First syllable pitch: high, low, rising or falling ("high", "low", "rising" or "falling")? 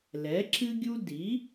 rising